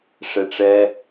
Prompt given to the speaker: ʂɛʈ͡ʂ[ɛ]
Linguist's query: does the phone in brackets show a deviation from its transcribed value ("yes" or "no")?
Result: no